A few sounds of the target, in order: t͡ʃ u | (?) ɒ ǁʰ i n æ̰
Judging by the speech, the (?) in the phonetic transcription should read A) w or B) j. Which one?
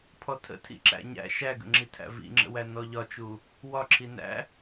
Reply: A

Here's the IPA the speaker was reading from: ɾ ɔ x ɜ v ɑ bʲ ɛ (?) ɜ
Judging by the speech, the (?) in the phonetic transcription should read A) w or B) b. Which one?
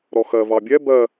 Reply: B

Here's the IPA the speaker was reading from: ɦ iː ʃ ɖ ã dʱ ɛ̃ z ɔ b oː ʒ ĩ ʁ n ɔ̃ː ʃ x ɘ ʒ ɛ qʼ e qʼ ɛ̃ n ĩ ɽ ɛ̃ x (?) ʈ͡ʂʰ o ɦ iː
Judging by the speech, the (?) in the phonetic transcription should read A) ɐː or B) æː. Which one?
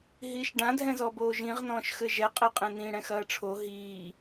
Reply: A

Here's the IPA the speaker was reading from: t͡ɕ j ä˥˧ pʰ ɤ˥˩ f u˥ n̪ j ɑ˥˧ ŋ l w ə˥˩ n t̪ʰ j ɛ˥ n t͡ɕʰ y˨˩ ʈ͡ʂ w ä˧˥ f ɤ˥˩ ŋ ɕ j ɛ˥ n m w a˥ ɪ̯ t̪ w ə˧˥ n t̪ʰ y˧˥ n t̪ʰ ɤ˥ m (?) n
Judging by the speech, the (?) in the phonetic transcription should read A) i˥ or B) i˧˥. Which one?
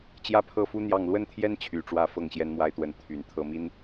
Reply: A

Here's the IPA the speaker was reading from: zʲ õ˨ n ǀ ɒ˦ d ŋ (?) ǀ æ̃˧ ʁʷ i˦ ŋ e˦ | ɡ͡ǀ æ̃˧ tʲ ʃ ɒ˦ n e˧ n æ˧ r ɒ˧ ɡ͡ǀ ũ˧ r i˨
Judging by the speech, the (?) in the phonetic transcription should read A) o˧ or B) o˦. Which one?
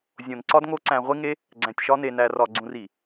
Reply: B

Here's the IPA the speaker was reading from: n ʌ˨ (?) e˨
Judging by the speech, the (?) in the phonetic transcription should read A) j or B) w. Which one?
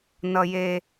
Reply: A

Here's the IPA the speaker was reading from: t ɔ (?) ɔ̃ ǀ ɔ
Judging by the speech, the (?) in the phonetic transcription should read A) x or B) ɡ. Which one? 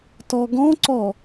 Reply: B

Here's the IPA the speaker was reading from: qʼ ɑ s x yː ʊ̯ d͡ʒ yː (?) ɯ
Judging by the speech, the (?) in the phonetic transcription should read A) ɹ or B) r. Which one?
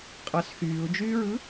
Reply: A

